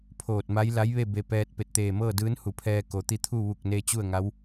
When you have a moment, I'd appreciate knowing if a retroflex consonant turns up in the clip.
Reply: no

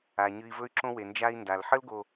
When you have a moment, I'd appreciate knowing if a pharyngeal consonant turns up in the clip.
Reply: yes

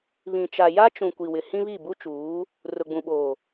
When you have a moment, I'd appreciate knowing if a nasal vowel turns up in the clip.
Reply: yes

